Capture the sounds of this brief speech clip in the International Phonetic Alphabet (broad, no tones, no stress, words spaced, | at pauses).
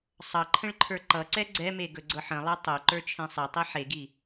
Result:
sˤʌ ǃʰə̃ɭǃʰə˞ǃʌǀɛ ɡ͡ǀɛme ɡɵɡ͡ǀɤħə̃lˠə˞ tˤɵ ǃə˞t͡ʃʰẽsˤetˤi ħeɡi